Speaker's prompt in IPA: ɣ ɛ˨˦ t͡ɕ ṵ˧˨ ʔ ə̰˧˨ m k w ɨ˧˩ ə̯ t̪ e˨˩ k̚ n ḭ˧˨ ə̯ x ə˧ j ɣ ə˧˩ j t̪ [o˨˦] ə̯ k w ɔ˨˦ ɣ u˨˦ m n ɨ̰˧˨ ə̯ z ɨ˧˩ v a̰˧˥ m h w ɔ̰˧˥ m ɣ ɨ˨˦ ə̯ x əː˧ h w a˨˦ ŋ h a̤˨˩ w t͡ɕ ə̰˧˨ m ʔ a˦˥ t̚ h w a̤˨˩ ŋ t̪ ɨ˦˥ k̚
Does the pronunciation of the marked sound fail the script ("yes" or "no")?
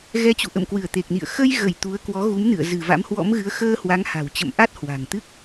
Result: yes